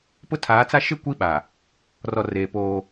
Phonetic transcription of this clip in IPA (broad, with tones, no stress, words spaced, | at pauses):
pʊ˦tʰaː˨˦t͡sa˦ ʃɪ˦˨kʷi˦ ɓa˨ | rɔ˨reː˨ poː˦